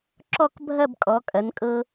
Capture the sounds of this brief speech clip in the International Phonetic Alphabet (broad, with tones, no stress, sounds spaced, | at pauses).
ǁ ɔ˥˧ k bʱ ɐ˥˧ b kʼ ɔ˩˧ kʼ ɐ˩˧ n kʼ ɤ˧